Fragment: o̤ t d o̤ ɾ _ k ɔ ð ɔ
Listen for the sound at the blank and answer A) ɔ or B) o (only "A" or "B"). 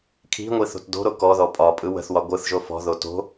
B